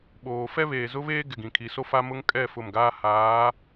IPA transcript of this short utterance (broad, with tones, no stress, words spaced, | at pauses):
ɓoː˨fɛ˦ βeː˨zʊ˦βeː˦ ɡɪ˨ɡĩ˨kʰi˨˦so˦ fa˦mʊ˦ŋ kʼɛ˦˨ fʊ˦˨mɡaː˦ haː˨˦